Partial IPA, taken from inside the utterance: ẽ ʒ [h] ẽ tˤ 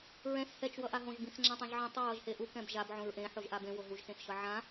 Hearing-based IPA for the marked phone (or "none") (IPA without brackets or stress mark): ʕ